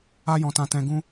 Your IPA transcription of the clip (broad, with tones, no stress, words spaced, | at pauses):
a˧jɔ̃˨tã˨ tɛ̃˨ɡũ˧